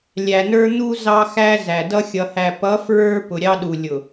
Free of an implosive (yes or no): no